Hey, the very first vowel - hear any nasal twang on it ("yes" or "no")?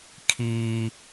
no